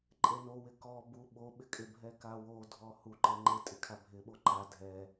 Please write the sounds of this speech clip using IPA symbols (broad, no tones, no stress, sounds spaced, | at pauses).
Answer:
ǃʼ e n o w ɪ k ɔ b u ɓ o ɓ ɪ kʼ ɪ bʱ ɛ k a w o dʱ ɔ h u ǃ e ŋ͡ǃ e tʼ ɪ kʰ a bʱ ɪ ɓ o ǃ a dʱ ɛ